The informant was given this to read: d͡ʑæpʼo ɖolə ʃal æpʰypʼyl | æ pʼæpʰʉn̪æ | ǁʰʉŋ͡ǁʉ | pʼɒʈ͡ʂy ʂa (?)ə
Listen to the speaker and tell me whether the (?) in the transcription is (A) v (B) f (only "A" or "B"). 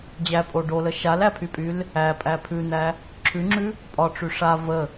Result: A